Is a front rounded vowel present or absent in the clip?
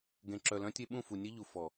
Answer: present